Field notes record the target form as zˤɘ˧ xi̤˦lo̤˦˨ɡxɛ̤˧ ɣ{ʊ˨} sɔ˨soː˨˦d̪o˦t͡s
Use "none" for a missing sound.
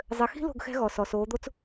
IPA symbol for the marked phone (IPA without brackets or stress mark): ɔ˨